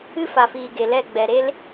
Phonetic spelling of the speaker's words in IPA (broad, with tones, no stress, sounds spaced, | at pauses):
ɨ˦ f a˨ f iː˨ ɡ e˨ l ɛ˦˨ ɡ͡b ɛ˨ ɾ e˧ l